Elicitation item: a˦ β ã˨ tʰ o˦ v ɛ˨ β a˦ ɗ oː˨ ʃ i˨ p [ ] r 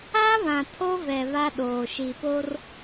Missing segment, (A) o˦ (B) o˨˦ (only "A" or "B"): A